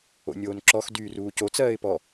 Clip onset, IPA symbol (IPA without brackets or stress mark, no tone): o̰